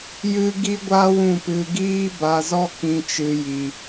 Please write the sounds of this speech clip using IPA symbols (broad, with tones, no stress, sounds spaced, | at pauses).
j ɨ˦ ɡ i˦ ɡʷ a˦ w ũ˦˨ p ɨ˧ ɡ iː˦ b a˧ z ɔ˦ k ĩ˧ t͡ʃ ɨ˧ j i˧